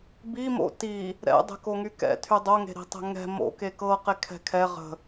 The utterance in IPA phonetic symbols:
b i m o̰ t i | ɾ ɛ̰ dˤ e̤ k o ŋ y k ɛ̰ tʰ y dˤ o ŋ e̤ ɾ i̤ tˤ ɛ̤ ŋ ɛ̤ m o̰ k e k ɤ q e kʰ ɛ̤ kʰ ɛ ʁ ə̤

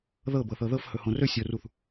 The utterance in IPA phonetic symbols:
ð ɤ b ɤ θ ɤ ð ɤ f h ɵ h õ r ɵ sʲ o r u θ

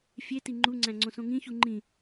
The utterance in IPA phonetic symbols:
fʲ e t i ŋ͡ǃ u ŋ͡ǀ æ̃ ŋ͡ǀ õ s õ ŋ ĩ ç u ŋ͡ǃ ĩ

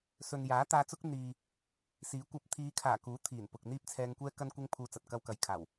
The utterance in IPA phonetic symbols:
s ɵ˨ n j aː˨˥ t̪ aː˧ t͡s ʊ˥ k̚ n̪ iː˨ | s iː˨˥ kʷ ɐ˧ p̚ t̪ʰ iː˨˧ kʰ aː˨˩ k uː˨˥ t̪ʰ iː˨˩ n p ʊ˨ k̚ n̪ iː˥ p̚ t͡sʰ ɛː˧ ŋ kʷ ɛː˥ k ɐ˥ n kʷ ɪ˥ ŋ pʰ uː˧ t͡s ɐ˨ t̚ k ɐ˧ w k ɐ˨ j kʰ aː˨˩ w

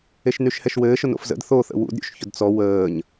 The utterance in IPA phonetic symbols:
e ʃ n y ʃ h ɛ ʃ w ɘː ʃ ʊ n o̰ f z ə̰ d θ o θ ə̰ w ṵ d ɾʲ ṵ ʃ ç ʊ d t͡s ɔ w əː ɲ

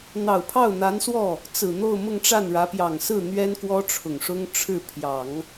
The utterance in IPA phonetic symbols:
n̪ ɑ˨˩ ʊ̯ pʰ ɑ˥˩ ʊ̯ n̪ a˧˥ n s w ɔ˥˩ | t͡s ɹ̩˨˩ n̪ o˥˧ ʊ̯ m ʊ˥˧ ŋ ʈ͡ʂ a˥˩ n ɻ ä˧˥ p j ɑ˨˩ ŋ s ɹ̩˥˩ n̪ ɥ ɛ˥ n k w ɔ˥ ʈ͡ʂʰ ʊ˨˩ ŋ ʂ ʊ˥ ŋ ʈ͡ʂʰ ɻ̩˥˩ pʰ j ɑ˨˩˦ ŋ

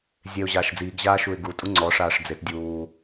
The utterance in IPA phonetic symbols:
zʲ e ʊ̯ ʑ aː ʃ d͡z iː ɡ ʑ aː ʃ u ɪ̯ ɡ u tʼ u ŋ͡ǀ ɔ ʂ aː ʂ d͡z e t dʲ uː

